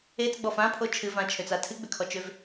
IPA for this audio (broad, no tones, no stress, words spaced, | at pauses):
et͡sɡ͡bɔf ãpʰo t͡ʃʰɨvãt͡ʃʰøt͡sa tʰɨɡ͡bʏkʰɔt͡ʃøv